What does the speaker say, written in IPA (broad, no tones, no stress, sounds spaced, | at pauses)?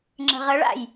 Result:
ŋ͡ǁ ə̤ ʁ ə ɭ a̰ j